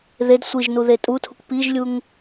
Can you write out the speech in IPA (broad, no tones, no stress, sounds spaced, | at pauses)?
ð e d sʷ i ʒ n u ð e tʼ u tʰ u k p i ʒ lʲ u ŋ